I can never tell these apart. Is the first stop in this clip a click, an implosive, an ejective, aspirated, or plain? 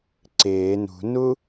click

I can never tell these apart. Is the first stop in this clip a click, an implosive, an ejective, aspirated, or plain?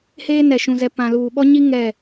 plain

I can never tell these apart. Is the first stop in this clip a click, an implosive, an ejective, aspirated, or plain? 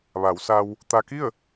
plain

